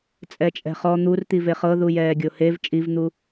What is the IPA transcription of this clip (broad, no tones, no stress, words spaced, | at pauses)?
t͡sʼɛt͡ʃʼɛ̤χɔ n̪ur t̪iveχɤ ðujɛːɡʲohev t͡ʃʼivn̪u